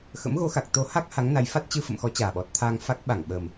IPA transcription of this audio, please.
xə̰˧˥mɣo˨˦xa˨˩k̚t̪o˨˦ ha˦˥k̚ ha˨˦ŋna˨˦jfa˦˥t̚ t͡ɕɨ˧fə̰˧˨mxɔ˨˦ t͡ɕaː˨˩ɓɔ˨˩t̚ t̪ʰa˧ŋ fa˦˥k̚ ɓa˧˩ŋɓə˨˩m

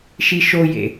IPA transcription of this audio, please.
ʃiʃojḛ

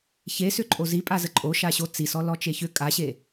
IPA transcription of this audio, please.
çesʏǃʼo zipʼazə ǃʼoʃaɕo t͡sisɔ lɔt͡ʃeçʏ kʼaɕe

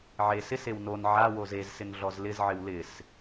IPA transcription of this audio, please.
ʕe sɪsew non ʕawo zezsɪn ɮɔzlɪzʕɪw lɪs

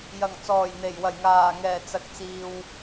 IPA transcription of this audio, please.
jɐ˨˩ŋt͡sɔː˨˩jn̪e˨˩j wɐ˨˩jŋaː˨˩ŋɛː˨˩ t͡sɐ˨k̚t͡siː˨w

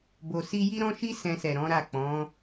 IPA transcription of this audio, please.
bo˧si˦ ji˦ɾɔ̃˦ʃi˦ sɛ̃˧sɛ˨ ɾɔ̃˨˦ɾa˦˨ k͡pɔ̃˨˦

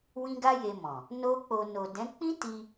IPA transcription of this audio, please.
wĩ˦ɡa˦je˧mɔ̃˨ | no˦k͡po˧ no˨dɛ̃˨˦ k͡pĩ˦ti˧

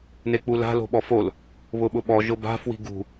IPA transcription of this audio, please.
nek͡pula̤ lo̤ɓɔfol | βʊɓʊɓɔ ʒʊba̤ fwi̤ɡṳ

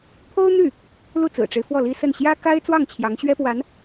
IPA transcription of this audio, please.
pʰo˥ʊ̯n̪y˥˩ | lu˥˩t͡sɹ̩˨˩ʈ͡ʂe˦ɪ̯ fwɔ˥˩li˥sə˥˩n ɕjä˥ka˥ɪ̯t͡swɑ˥˩ŋ t͡ɕʰjɑ˧˥ŋɕɥɛ˥pwa˧˥n

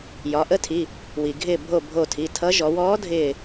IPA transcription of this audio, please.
jɒ˩˧ʔə˧˥tʰi˩˧˩ | wi˩ ɡʱɪː˧˩bʱo˧˩ bʱo˧˩tʰi˩˧˩tʰʌ˧˥ ʒɔ˩˧wɔː˧˥dʱɪː˧˩

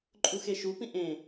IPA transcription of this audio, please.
ǃʼuxeʃupĩ ʔẽ

